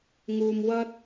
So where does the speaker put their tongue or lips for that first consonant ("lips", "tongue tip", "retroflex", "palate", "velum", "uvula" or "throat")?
velum